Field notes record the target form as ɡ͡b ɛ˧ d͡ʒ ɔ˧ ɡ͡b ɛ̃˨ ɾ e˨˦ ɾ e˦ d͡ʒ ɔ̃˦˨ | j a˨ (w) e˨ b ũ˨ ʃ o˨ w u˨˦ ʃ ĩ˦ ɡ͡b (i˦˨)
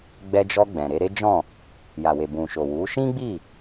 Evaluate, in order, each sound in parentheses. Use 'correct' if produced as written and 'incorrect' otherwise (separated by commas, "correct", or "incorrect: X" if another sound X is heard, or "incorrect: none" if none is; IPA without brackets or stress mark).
correct, correct